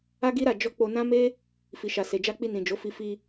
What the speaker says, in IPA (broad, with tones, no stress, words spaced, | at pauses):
a˦ɡi˦ɾa˦˨ d͡ʒɔ˧k͡po˧nã˦ me˦ | fi˨ʃa˨ se˨d͡ʒa˧k͡pi˧ nĩ˨d͡ʒo˨˦fi˧ fi˧